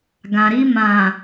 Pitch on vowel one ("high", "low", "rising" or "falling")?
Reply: low